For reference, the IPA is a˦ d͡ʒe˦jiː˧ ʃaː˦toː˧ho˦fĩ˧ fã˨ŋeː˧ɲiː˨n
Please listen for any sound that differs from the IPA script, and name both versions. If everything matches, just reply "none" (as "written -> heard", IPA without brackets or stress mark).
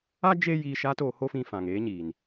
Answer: none